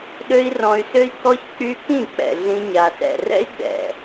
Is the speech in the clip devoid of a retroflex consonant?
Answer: yes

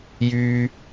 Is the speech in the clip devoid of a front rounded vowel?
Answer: no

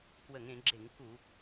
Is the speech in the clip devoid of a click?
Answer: no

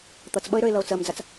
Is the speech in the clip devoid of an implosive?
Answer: no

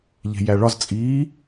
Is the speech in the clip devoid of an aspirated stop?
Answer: yes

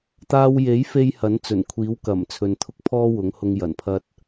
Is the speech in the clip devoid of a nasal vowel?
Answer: yes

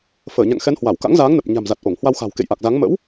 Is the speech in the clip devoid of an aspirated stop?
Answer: yes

